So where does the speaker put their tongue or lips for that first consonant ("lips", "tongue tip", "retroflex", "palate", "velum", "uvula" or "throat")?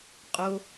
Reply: uvula